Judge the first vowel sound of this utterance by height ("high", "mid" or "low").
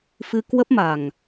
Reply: high